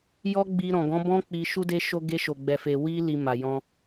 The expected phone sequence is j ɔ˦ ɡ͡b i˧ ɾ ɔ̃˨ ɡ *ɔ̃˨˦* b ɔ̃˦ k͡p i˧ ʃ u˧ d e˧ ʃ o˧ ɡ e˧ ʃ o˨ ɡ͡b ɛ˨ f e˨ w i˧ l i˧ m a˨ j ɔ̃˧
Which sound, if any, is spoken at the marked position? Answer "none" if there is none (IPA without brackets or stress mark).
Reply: ɔ̃˨˦